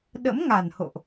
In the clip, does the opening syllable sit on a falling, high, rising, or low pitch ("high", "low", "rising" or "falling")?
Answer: rising